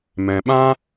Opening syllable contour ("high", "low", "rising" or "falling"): low